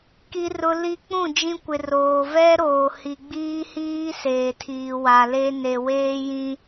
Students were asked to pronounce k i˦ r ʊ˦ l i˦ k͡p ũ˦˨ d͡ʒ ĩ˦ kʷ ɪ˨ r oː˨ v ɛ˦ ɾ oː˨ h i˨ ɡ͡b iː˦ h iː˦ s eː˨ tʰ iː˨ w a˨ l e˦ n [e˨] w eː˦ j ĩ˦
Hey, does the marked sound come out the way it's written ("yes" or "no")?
yes